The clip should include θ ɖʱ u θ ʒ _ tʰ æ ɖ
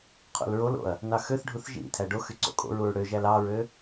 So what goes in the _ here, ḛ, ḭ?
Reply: ḭ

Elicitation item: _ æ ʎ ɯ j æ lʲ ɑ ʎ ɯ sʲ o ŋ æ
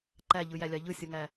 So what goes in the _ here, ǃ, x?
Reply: ǃ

